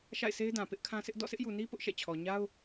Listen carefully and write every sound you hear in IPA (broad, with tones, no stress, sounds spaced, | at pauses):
ʃ a̰˦˨ ɪ̯ s e˦ ɪ̯ d ã˨ p ɪ˦ ʔ kʰ ã˦ s ɪ˦ ʔ d ɔ̰˦˨ sʰ ɪ˦ ʔ j u˨ n i˦ p ʊ˦ ʔ ʃ ɛ̰˦˨ t͡ɕʰ ɔ˨ ɲ a˦ ʊ̯